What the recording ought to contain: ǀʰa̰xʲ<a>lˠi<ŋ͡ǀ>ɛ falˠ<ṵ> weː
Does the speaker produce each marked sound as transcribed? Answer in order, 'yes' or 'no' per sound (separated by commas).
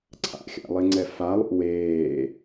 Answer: no, yes, yes